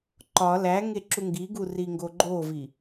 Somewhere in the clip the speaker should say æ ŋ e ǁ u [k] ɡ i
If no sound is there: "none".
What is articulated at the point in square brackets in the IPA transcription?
ŋ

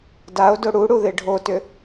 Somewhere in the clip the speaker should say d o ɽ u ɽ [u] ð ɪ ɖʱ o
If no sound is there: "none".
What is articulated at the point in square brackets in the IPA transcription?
u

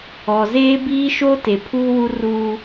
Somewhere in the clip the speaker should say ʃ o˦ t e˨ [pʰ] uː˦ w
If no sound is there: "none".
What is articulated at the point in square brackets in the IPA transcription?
pʰ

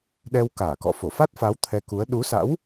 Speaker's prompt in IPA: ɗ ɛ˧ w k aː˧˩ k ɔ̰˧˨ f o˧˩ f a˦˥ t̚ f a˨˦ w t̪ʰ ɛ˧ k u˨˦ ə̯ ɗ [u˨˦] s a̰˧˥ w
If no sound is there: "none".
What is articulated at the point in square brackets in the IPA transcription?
u˨˦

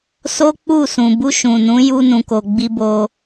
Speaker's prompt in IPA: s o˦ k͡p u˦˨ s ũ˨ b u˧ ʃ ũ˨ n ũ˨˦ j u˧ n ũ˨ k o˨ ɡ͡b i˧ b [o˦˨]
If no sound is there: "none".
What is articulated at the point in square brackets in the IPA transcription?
o˧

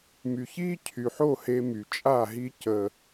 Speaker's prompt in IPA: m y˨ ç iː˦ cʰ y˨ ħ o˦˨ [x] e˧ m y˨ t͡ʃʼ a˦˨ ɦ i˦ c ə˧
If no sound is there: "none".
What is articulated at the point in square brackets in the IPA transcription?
h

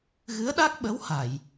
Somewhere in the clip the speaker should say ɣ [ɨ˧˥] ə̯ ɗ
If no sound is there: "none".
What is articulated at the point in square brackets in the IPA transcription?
ɨ˧˥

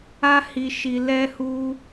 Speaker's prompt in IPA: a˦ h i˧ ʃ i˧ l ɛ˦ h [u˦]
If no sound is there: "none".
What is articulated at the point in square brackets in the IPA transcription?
u˦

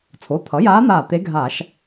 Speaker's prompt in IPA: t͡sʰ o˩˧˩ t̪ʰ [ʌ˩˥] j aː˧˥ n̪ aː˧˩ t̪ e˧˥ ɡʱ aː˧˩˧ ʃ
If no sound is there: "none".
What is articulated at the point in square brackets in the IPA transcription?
ʌ˩˥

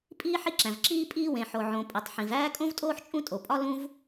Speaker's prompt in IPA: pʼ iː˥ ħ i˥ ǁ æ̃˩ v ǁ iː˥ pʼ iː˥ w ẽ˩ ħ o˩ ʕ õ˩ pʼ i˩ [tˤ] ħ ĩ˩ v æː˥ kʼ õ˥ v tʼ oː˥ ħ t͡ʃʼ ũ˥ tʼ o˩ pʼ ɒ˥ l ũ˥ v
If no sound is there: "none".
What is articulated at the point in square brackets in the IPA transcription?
tˤ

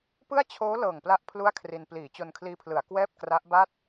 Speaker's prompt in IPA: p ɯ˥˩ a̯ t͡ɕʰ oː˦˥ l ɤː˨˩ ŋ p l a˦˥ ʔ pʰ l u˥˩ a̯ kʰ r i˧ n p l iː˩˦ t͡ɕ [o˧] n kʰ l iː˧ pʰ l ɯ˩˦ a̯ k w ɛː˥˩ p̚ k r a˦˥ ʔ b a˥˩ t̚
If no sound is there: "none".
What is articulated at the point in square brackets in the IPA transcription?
o˧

